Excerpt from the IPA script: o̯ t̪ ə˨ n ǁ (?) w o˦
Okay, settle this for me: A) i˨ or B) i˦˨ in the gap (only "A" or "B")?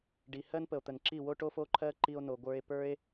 B